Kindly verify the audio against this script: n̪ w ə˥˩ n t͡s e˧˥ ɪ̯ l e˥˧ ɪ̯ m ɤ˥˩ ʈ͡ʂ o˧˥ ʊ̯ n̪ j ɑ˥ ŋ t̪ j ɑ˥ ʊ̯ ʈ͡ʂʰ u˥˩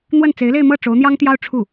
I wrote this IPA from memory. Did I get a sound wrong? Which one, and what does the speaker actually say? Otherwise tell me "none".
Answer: none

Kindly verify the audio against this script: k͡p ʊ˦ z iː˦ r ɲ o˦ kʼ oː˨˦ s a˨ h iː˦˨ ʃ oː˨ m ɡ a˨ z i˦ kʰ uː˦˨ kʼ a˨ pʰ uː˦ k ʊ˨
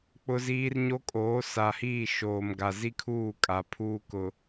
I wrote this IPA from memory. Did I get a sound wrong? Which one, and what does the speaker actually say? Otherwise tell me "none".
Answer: none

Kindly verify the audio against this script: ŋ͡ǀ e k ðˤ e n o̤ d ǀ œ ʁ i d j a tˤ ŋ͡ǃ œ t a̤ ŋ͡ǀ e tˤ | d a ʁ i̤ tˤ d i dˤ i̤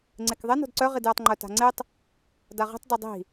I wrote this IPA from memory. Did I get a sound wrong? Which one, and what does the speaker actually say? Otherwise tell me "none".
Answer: none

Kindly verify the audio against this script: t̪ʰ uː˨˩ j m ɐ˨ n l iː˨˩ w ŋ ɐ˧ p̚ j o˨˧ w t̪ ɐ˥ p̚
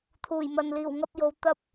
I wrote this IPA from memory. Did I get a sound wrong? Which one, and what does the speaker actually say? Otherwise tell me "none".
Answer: none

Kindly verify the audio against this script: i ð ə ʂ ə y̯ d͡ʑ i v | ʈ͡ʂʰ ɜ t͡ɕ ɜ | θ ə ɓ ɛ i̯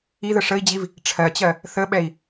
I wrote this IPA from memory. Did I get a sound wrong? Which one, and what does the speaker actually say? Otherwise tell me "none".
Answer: y̯ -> i̯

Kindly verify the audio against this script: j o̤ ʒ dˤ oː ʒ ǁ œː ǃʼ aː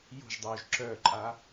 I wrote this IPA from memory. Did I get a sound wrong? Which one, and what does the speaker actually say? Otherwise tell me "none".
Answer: none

